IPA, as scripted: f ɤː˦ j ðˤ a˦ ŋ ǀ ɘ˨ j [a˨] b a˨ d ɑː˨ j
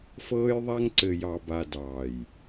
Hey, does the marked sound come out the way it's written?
no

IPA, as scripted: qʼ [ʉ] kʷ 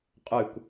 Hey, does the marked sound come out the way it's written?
yes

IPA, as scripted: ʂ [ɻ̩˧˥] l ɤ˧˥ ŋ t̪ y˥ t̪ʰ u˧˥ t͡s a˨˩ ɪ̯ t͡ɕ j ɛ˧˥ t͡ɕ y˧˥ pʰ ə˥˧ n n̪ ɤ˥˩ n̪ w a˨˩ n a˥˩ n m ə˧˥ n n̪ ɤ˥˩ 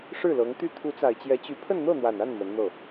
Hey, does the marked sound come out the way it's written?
no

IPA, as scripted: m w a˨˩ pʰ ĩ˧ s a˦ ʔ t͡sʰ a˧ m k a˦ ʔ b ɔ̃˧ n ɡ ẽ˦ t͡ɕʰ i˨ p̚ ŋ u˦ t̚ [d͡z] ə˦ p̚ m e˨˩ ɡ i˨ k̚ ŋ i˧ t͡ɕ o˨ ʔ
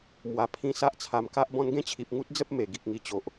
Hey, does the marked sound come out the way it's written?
yes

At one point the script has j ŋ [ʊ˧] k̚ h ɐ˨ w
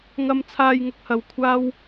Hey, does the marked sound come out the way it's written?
yes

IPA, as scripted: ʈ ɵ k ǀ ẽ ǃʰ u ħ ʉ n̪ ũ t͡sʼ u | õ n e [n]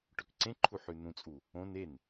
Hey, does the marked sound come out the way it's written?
yes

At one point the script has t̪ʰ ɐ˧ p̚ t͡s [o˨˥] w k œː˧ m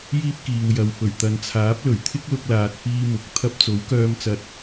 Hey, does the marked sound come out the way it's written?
yes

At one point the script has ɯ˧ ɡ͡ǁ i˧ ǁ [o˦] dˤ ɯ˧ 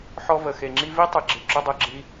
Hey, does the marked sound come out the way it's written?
yes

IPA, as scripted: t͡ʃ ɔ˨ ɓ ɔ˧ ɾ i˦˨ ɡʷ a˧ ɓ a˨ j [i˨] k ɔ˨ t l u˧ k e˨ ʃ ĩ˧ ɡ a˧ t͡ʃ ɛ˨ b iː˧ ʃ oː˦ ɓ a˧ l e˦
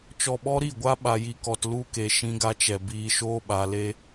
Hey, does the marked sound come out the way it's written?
yes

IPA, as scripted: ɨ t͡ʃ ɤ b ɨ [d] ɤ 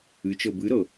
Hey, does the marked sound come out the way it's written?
no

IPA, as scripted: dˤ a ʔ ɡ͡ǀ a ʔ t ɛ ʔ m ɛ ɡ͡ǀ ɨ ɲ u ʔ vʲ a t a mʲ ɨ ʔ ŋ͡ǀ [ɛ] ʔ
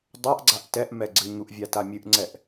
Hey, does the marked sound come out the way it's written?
yes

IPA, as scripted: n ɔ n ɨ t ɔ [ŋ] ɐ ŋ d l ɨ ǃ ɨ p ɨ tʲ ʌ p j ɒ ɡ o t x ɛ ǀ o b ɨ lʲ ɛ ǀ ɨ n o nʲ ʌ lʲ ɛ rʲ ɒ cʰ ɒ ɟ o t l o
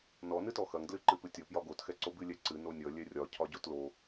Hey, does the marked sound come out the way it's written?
no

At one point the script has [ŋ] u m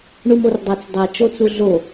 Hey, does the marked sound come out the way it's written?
no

